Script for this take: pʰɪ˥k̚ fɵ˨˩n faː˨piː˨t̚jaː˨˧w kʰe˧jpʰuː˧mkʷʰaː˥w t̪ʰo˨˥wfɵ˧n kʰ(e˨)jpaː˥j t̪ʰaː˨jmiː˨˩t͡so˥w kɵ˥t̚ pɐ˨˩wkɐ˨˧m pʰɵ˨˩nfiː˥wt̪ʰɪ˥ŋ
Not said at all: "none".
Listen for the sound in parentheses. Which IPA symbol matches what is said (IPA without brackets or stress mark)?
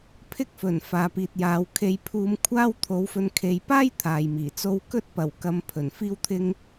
e˨